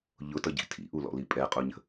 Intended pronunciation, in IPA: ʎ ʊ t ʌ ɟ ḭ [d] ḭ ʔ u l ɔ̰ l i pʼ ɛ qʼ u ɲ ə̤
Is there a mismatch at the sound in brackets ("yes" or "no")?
yes